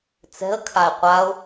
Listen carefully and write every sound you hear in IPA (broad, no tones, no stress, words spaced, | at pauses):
t͡sɛ̤ə̯ kʰaɪ̯qʷaʊ̯